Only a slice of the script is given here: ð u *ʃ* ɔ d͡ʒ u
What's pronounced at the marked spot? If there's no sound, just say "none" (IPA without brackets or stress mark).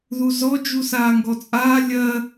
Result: z